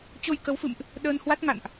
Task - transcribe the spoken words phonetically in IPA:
t͡ɕo˧jkə˨˦wfɨ̰˧˨mʔ | ɗəː˧nhwa˦˥t̚ŋa̰˧˨nʔ

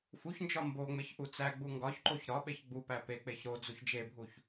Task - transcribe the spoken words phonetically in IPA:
fuçnd͡ʒɒ mboŋ͡meç ʔut͡sæɡ͡bu ŋɡɒçǃoç ɾɒ ɓeçɡ͡bupæ pek͡peç ɾo d͡zuçd͡ʒebʱuç

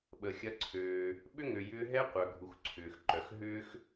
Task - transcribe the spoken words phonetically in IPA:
ɓə˩xʲɐ˧ǀʰøː˩ | ɓʏ˥ŋø˩jʏː˧ɦɛ˥ qʷœ˩ɡʱu˩x ǀʰʏː˩xǃœ˩xɦʏː˥x

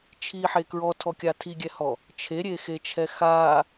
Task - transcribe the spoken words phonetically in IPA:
t͡ʃʰiħe kɹɔtʰɔkʲa tʰiɡʲɛhɔ | t͡ʃʰeɾʲexet͡ʃʰɛ xa

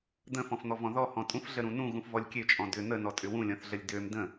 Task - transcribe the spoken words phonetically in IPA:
d̪ə̃fɔ̃fn̪ɔvɔ̃ ðɔhɔ̃ tʼũfɮəɾũ nũɣũfvɔlʲ kʲøt͡ʃʼɔ̃ dʏ n̪ənɔtʼʏ wũlʲɔ̃θɮəlʲ døm də̃

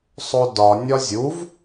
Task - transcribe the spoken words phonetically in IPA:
sˤodɒ nʲɒzʲuv

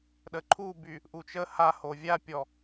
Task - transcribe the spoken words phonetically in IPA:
ɗəǃʰuby | ʔut͡ʃə haho vʲapʲɔ

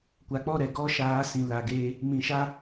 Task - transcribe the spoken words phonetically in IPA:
kʷa˨k͡pɔ˦˨ɾɛ˨ ɡɔ˦ʃaː˨˦ sĩ˨la˨ɡeː˧ | mĩ˨ʃa˦

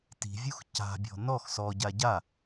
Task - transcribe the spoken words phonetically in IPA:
ti̤vʲux ca̤bʲɔ̤ nɔx sɔɟa ɟa

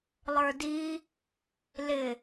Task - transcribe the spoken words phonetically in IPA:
lˠə˞di | lɪ

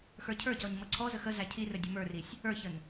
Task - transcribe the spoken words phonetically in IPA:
xə˞cʰə˞cɔɲ mʌǀʰɔzə xə zæcʰirə dʲəmə˞risʲ | ə˞çən

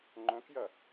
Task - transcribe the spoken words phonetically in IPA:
ŋ͡ǃœ̃kjɐ

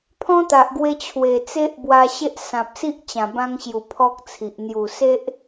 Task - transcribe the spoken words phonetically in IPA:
pʰɔ̃˦t̪a˨ʔɡwe˧ t͡ɕʰwe˨˩t͡se˦ʔbwa˧ɕe˦ʔ sã˨p̚si˦ʔ t͡ɕã˨˩bã˧ŋɕju˨˩ pʰɔ˦k̚t͡sʰi˨ʔ n̪ju˨˩se˦ʔ

